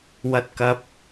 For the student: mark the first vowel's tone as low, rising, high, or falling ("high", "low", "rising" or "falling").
high